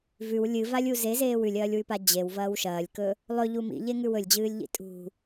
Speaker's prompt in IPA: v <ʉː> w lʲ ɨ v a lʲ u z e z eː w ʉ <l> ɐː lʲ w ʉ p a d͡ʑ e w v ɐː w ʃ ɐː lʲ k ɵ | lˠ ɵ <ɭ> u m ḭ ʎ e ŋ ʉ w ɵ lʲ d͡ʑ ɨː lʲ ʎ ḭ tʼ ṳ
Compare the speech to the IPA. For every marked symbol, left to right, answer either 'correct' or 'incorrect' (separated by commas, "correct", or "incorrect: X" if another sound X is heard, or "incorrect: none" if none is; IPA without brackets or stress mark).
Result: incorrect: ʉ, incorrect: lʲ, incorrect: ʎ